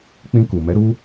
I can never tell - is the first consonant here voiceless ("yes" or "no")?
yes